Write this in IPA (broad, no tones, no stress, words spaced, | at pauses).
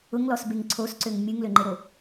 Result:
ʊŋlɔsbeŋ ǀʰosǀøŋ mʲɯŋløŋ͡ǃeɾo